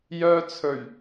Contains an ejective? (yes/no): no